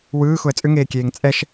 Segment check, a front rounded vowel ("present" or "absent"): present